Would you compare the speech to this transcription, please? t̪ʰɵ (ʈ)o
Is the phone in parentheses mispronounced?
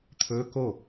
yes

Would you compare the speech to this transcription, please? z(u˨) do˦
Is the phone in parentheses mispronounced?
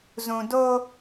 yes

